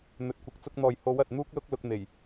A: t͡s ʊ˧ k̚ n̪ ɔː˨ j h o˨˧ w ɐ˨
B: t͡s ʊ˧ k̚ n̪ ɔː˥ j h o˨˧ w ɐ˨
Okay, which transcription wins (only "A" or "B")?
A